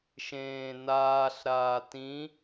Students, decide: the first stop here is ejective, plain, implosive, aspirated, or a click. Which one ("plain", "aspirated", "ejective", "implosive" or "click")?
plain